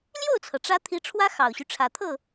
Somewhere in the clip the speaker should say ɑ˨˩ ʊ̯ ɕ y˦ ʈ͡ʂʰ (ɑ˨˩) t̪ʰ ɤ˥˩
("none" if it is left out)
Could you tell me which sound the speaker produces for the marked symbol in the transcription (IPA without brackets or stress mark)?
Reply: ä˨˩